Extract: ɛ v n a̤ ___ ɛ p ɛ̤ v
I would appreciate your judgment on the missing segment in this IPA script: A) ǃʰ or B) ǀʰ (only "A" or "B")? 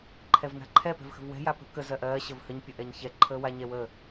A